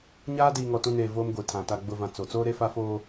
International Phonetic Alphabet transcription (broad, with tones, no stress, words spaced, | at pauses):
ɲaː˦ diː˨ŋɔ˨tũ˨neː˨ voː˦mɡʷi˨ tʰã˨ ta˨ɡ͡bʊ˨vã˨ t͡so˨t͡soː˦ ɾe˦fa˦foː˦